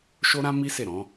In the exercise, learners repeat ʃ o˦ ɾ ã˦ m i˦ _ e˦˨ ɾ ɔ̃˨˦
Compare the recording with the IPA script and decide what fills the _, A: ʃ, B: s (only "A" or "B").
B